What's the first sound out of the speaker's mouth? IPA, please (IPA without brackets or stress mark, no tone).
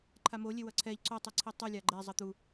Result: ǃʰ